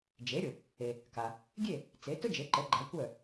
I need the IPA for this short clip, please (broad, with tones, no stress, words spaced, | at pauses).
d͡ʒe˩˥ɾʲʊ˩ | e˩ | ka˩ | ɡʲe˥˩ | t͡se˩˥ tʊ˥d͡ʒe˩˥ǃə˩˥ ɡ͡ǃa˩˥kʷœ˥˩